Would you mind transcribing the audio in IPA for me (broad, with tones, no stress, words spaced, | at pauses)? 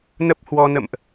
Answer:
nə˦˥p̚hwɔ˧nə̰˧˨mʔ